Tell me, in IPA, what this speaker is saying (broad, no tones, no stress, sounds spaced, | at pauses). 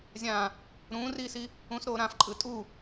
zʲ ã | ɾ ũː r iː s i | ũ s ɾ oː ɾ ã f ǃʼ ɯ tʼ u